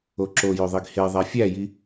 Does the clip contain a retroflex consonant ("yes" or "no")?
no